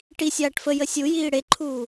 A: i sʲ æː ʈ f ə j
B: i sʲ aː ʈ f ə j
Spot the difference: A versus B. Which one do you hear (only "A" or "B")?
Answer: B